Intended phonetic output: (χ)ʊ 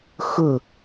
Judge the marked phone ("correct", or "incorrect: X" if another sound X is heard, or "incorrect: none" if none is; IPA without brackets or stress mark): incorrect: x